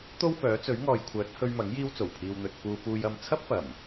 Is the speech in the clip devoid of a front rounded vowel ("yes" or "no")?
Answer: no